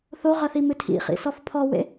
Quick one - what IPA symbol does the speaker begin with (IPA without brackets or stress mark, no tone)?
θ